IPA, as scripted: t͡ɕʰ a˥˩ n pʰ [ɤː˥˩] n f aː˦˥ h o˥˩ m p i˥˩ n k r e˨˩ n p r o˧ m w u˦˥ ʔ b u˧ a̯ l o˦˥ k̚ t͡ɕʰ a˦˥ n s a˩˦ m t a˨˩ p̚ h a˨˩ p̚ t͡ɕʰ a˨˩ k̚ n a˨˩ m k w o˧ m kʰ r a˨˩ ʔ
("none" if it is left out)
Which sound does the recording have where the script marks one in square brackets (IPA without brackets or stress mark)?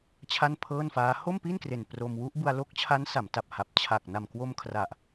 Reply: ɤː˥˩